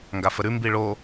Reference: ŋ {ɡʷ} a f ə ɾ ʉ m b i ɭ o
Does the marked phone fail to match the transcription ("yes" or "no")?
yes